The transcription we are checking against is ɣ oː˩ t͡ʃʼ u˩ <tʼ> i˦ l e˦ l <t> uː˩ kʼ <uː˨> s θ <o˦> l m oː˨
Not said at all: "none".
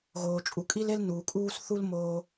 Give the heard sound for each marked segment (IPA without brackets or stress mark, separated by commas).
kʼ, n, uː˦, u˦